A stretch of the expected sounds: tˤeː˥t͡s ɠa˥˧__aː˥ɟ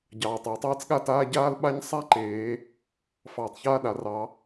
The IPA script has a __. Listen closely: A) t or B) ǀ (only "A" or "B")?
A